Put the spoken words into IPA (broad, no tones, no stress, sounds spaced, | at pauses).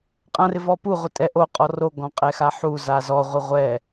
qʼ ã r ɪ v ɔ p u ʁʷ ɪ tʼ ɛ ʔ o qʼ ɔ r o ɡ ɔ̃ qʼ ɛ x a ħ u z a z ɔ ʁʷ ɪ ʁʷ ɛ